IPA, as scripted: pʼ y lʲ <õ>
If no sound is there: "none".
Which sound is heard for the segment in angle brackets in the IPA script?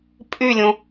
õ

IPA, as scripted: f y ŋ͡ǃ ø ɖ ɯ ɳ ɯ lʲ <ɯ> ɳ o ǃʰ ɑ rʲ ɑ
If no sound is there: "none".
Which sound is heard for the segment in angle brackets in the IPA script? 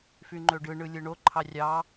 ɯ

